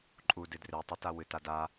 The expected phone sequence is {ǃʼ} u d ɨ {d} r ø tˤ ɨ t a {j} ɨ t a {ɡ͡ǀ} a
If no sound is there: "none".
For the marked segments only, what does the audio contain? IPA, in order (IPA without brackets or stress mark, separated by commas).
ǃʼ, d, w, d